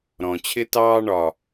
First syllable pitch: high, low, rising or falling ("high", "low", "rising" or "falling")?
low